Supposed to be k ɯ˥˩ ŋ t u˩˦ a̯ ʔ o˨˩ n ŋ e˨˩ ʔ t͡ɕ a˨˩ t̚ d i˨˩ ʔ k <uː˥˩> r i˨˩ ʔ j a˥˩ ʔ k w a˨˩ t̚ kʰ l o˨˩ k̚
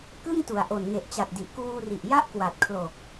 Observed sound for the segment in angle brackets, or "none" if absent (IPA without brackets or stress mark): uː˧